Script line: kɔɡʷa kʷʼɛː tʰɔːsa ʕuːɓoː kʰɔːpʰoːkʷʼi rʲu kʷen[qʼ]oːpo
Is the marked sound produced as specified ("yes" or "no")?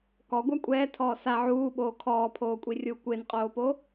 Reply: yes